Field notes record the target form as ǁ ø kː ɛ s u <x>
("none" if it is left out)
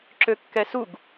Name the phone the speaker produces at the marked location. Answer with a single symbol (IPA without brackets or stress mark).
ɡ